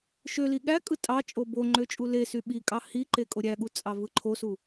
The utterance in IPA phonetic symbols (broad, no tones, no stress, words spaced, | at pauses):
ʃøli ɠækʼɯ tʼɑ t͡ʃʼoboŋ͡ǃø t͡ʃʼulesy ɓi kʼɑhiǃe kʼoɾʲæɠu t͡sʼɑvɯǃʰosu